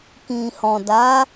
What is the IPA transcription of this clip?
k ĩ˨ h ɔ̃˨ d a˨˦

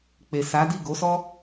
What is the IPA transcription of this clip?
k͡p e˨ s a˨˦ d i˦˨ ɡ o˨˦ s ɔ˦

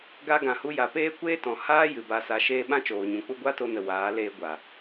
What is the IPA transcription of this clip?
ɡ a˧ ɡ ã˨ h u˧ j a˨ p eː˦ kʷ eː˦ t ɔ̃˨ h aː˦ j ɨ˨ b a˧ s a˧ ʃ eː˦ ɓ ã˦ t͡ʃ oː˨ ɲ ũ˨ k͡p u˦ ɡʷ a˦ t o˧ n ə˨ w aː˨˦ l eː˧ ɡʷ a˨

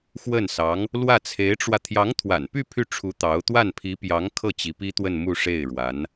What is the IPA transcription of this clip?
x w ə˥˩ n s ɑ˧˥ ŋ | l w ä˥˩ t͡sʰ e˧˥ ɪ̯ ʈ͡ʂ w ä˧ t̪ʰ j ɑ˧˥ ŋ t̪ʰ w a̰˨˩ n p y˥˧ pʰ y˥˩ ʈ͡ʂʰ u˧˥ t̪ ɑ˧˥ ʊ̯ t̪ w a˥˩ n pʰ i˧˥ p j ɑ˧˥ ŋ kʰ ɤ˥˩ t͡ɕ i˧˥ p i˥ t̪ w ə˥˧ n m u˥˧ ʂ e˥˩ ɪ̯ ɻ w a˧˥ n

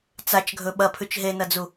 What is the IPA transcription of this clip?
t͡s a t͡ʃ ɡʱ ɵ ɓ ɐ pʰ ʉ t͡ʃ ɦ e n ɐ d͡z u

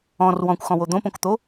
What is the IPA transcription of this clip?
ɔ̃ r w ɔ̃ kʷ x ɔ̃ w o d̪ õ p õ k t̪ o

